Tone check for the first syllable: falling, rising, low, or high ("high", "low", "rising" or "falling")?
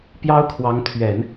high